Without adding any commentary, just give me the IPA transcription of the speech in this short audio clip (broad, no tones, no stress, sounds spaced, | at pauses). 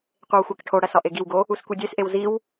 qʷ e w xʷ æ k ʈʰ o ɽ æ s ɒ ʔ e ɡ i w ɡ o | u s kʷ i dʲ e s ʔ e w z i w